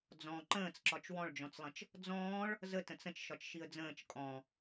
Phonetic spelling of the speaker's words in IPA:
d͡z ɔ̃ ǃ ə̃ː t͡s ǁ ɒ t͡ʃ w ɔ̃ ɭ d͡ʒ ɔ̃ t͡s lˠ ə̃ t͡ʃ | d͡z ɔ̃ː ɭ | z ə t ə̃ t͡s ə̃ t͡ʃ ʃ ɒ t͡ʃ ʃ i ə̯ d͡z ə̃ː t͡ʃ kʼ ɔ̃

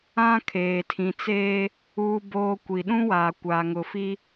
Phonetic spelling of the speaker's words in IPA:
ã˦ kʰ eː˨ tʰ ĩ˨ t͡s eː˦ | uː˦ b oː˦ kʷ i˨ ɗ ũ˦ w aː˨ kʷ aː˨ ŋ ʊ˨ f i˦

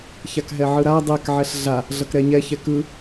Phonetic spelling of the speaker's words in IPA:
ç a k ɦ ɛ ʕ ɯ ɾ a dˤ ɛ k ʕ ɛ ɬ ɮ a | ɮ ʌ k ɾ ɛ ɲ ɛ ç ɛ k ɯ

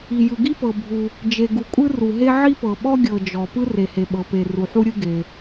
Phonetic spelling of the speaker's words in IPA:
i˩ j ɯ˩ ɡ i˥ p ɤ˩ bʱ u˩ | d͡ʒ e˩ ɡ u˩ kʷʼ ɯ˥ r u˩ ɦ e˥ ʕ i˥ p ɤ˩ ɓ ɔ˥ ɡʲ ɤ˩ d͡ʒ ɔ˩ p ɯ˥ r e˩ h e˩ ɓ ɤ˩ p e˩ r u˩ ħ u˥ ɾʲ ɯ˥ ɡ e˩

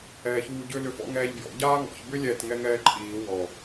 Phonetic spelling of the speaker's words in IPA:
ɛː ç uː ɟ ʏ l ʏ f ɔ̰ ŋ ɛː ʎ b j ɔ̰ ɟ aː ŋ ɔ̰ ç b ʏ lʲ ɛ t ŋ ɛ ŋ ɛː ǃʼ iː w ɔ

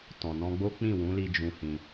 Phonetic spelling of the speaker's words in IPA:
t ɔ̃˨ n ɔ̃˧ ɡ͡b o˦ k͡p ĩ˦˨ w ũ˨˦ l i˧ d͡ʒ ũ˧ h ĩ˧

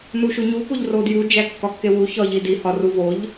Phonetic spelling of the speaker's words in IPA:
n u ʃ u ɲ u p o ʎ r o d j u d͡ʒ æ kː ɒ kː e w u ç ɒ ʎ i d i h ɒ r u v o ʎ

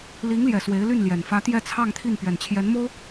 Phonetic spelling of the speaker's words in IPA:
l i˧˥ ŋ l j ɛ˨˩ s w e˧˥ ɪ̯ l y˥˩ n l j ɛ˨˩ n f ä˧˥ t̪ j ɛ˥˧ t͡sʰ ɑ˥˧ ŋ t̪ʰ i˥˩ n p ɥ ɛ˨˩ n t͡ɕʰ j ɛ˧˥ n m o˥ ʊ̯

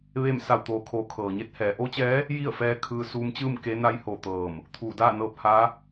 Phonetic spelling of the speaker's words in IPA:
ʋ e˥˨ m s a˧˩ w t̪ oː˩ kʰ oː˩˧ kʰ ɤː˩ ɲ e˧ t̚ h ɛː˩˧ ʔ o˧˥ t͡ɕ ɛː˧˥ | j i˥˨ ə̯ f ɛː˧ kʰ ɯː˧ s uː˧ m t͡ɕ ɯː˥˨ m k e˧˥ n a˧˥ j h o˧˩ t̪ ɤː˧˩ m | t̪ʰ uː˧˩ d aː˥˨ n ɤː˧ p̚ h a˧˥

